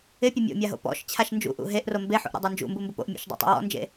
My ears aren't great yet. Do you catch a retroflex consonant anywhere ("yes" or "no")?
no